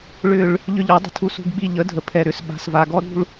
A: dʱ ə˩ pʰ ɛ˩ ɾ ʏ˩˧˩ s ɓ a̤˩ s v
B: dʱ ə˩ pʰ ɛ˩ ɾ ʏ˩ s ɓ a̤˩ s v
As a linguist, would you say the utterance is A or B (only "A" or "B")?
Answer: A